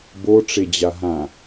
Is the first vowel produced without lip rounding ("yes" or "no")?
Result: no